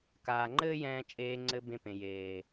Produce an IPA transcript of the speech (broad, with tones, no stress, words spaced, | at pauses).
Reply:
kaː˨ŋ͡ǃɘː˦jɛ̃ː˧ t͡ʃʼeː˧ŋ͡ǀɘ˧ bẽ˧pẽ˨ jeː˨